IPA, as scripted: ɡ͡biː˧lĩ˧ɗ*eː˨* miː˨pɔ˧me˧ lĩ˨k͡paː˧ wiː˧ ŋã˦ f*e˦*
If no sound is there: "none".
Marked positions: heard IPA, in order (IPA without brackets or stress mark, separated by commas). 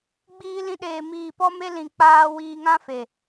eː˨, e˨